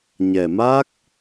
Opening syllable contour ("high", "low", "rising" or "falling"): low